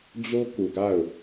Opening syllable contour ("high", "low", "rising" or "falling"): high